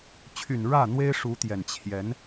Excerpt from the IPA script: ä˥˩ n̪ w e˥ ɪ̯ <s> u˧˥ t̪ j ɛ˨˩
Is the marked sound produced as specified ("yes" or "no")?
no